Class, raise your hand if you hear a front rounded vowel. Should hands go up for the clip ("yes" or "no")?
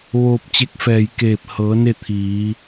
no